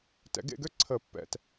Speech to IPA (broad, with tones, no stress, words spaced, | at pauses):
tɛ̰˨˩˦ɡḛ˥˨ɡø˥˨ ǀʰə˨˩˦ pːɛ̰˧˩t